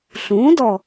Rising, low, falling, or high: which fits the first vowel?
rising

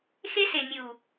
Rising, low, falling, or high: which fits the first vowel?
high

